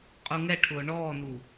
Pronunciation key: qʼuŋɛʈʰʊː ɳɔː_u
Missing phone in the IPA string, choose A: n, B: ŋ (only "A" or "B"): A